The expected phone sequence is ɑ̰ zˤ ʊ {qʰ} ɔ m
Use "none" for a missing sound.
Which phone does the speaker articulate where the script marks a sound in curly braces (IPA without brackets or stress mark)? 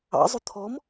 t̪ʰ